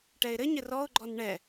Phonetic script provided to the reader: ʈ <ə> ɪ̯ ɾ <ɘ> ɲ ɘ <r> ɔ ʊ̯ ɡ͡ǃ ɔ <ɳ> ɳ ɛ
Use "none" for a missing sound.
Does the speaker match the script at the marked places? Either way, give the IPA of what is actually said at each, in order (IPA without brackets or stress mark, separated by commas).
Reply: ɛ, ɘ, r, n